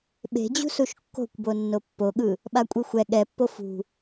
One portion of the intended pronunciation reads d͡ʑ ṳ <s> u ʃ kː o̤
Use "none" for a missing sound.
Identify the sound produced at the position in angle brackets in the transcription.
s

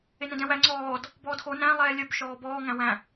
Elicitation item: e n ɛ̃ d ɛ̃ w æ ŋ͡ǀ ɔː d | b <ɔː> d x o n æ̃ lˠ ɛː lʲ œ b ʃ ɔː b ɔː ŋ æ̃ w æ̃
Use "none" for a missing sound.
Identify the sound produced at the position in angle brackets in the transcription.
ɔː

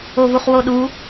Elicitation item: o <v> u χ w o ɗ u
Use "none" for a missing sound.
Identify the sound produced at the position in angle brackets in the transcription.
v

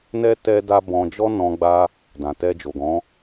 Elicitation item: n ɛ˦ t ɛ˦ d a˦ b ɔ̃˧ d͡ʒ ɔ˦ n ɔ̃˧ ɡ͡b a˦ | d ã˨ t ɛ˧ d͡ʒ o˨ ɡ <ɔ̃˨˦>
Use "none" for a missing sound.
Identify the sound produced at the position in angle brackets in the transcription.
ɔ̃˨˦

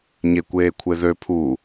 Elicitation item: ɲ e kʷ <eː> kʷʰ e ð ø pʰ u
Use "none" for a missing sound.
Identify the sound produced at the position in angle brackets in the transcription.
eː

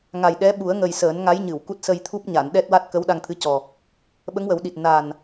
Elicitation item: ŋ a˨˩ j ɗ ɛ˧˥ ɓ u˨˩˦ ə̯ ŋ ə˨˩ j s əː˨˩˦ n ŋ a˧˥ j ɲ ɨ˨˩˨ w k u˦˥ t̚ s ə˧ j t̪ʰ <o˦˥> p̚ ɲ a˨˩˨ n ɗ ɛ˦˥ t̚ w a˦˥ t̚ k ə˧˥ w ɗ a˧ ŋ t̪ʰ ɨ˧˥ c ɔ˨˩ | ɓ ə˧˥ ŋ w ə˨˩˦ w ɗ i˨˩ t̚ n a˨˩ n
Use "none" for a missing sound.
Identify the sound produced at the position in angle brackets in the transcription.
u˦˥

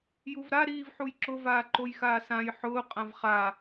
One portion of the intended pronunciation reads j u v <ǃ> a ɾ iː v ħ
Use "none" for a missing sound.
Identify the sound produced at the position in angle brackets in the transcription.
ɾ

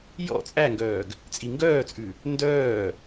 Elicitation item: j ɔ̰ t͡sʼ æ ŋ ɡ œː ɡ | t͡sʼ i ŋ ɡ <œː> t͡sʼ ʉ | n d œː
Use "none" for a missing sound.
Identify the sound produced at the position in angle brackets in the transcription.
œː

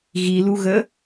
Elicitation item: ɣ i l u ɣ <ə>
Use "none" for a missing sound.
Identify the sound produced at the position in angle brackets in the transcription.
ə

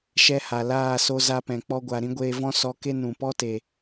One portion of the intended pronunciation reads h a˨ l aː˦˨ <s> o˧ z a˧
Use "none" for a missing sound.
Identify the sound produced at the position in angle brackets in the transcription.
s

